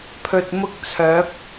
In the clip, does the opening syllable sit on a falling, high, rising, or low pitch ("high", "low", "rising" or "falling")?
low